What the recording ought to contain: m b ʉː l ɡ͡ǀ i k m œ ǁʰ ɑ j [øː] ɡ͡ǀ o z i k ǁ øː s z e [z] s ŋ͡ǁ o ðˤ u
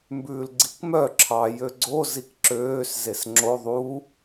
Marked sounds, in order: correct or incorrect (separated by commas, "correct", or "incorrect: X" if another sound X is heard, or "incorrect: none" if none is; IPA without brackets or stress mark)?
incorrect: ø, incorrect: none